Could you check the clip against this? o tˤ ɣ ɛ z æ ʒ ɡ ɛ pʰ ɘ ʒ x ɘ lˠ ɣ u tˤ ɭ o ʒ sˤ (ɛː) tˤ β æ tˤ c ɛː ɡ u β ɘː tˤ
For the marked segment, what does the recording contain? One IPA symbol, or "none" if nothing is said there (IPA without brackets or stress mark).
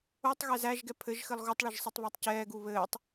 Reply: ɛ